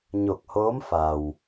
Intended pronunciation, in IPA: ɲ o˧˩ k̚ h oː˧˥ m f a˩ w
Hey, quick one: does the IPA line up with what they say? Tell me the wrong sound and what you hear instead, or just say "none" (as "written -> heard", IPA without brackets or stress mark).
none